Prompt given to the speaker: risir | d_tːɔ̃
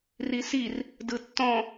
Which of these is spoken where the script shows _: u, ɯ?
ɯ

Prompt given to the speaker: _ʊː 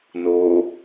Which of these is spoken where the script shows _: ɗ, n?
n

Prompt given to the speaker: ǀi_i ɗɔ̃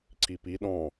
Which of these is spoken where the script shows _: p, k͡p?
p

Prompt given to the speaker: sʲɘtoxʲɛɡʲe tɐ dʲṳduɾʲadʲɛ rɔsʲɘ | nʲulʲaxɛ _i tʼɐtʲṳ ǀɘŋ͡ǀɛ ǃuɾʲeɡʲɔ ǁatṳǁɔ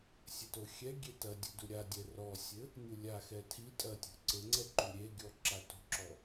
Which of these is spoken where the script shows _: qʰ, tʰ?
tʰ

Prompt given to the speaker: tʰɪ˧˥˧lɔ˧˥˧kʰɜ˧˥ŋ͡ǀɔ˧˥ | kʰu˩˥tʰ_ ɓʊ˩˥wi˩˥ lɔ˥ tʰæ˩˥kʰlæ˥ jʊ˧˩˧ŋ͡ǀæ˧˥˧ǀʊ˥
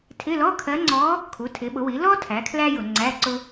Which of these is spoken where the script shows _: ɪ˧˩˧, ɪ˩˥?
ɪ˩˥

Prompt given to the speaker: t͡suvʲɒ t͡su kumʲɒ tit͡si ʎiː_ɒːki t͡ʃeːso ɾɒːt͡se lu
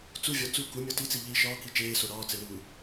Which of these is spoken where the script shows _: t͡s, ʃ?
ʃ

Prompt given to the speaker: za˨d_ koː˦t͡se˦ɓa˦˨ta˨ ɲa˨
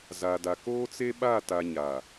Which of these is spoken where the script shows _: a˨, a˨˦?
a˨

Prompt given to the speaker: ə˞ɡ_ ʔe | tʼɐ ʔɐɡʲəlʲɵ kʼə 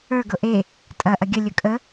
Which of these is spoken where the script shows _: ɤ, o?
ɤ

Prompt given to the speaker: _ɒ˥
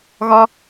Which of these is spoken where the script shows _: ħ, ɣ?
ɣ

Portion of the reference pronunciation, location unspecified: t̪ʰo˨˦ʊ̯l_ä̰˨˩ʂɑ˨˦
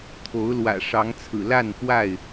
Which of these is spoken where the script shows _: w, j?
w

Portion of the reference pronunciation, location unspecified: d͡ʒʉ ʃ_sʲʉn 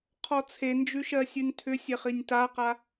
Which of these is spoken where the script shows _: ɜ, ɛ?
ɜ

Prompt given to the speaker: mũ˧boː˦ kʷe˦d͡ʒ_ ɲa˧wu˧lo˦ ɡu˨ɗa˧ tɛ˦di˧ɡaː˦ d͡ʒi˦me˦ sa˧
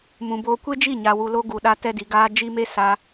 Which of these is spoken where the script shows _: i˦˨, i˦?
i˦˨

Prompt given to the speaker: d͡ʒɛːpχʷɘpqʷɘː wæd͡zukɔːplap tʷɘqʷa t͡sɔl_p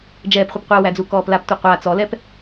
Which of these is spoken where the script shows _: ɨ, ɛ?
ɛ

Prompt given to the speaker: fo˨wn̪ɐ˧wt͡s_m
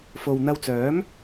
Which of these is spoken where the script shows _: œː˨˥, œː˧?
œː˨˥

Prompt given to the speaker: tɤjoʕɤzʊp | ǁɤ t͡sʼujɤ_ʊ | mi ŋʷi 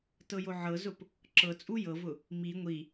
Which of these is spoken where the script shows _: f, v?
v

